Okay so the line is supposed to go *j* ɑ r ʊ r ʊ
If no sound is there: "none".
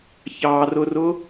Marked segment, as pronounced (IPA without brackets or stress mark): ç